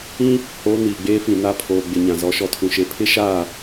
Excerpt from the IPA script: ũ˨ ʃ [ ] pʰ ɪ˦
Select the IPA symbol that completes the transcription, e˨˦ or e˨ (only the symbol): e˨